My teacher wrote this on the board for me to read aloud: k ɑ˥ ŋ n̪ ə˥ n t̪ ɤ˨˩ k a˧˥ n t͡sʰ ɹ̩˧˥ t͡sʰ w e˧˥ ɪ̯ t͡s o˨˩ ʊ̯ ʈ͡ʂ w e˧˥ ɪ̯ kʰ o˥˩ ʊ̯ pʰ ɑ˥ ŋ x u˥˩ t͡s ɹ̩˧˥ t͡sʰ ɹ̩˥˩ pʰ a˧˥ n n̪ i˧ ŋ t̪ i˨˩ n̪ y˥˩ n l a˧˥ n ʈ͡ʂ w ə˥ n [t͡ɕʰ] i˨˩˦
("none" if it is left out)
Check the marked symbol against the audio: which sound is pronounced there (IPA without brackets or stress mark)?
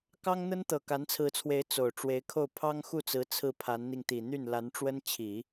t͡ɕʰ